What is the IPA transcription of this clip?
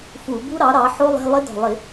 f u˧˩˧ b u˦˥ ɾ ɑ˩˥ ɾ ɑ˩˥ ħ o˦˥ lˠ e̤˧˥˧ lˠ ɪ˦˥ d ɔ̤˨˩ lˠ ɪ˧˩˧

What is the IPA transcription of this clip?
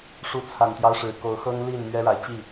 ʂ u˨˦ t͡sʰ a˨˩ n t̪ j ɑ˦ ʊ̯ ʂ ɻ̩˨˩ k o˨˦ ʊ̯ x ɤ˦ ŋ l i˥˨ n m ɥ ɛ˦ ɻ a˨ ɪ̯ t͡ɕ i˥˨

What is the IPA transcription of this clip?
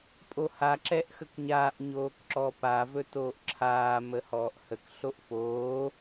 pʼ o h a ǁ ɛ ʔ x ə k ɲ aː ʔ ɲ oː k ǁ ɔ p a v ɵ t oː ʔ ǁʰ aː m ə h ɔː ʔ h ə k ɬ o ʔ f oː

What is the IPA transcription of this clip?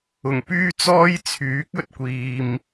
ʊ˨˩ ŋ p yː˥ t͡s ɔː˥ j t͡sʰ yː˨˥ k̚ ɵ˨ t̚ kʷ iː˨ m

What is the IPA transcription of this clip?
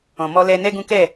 ɔ̃˨ m ɔ˧ l ɛ˧ n ɛ˦ ɡ ũ˦ k ɛ˦˨

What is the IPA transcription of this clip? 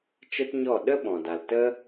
t͡ʃ ə˦ t ɲ ɔ˦˨ ɗ ə˦ ɓ ɔ̃˨ d a˨ l t ə˦

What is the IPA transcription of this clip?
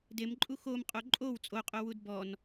d e m ǃʼ u x o m qʼ o ǃʼ o w t͡sʼ o qʼ o w u d b ɔ n

